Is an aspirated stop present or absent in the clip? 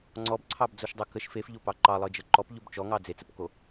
present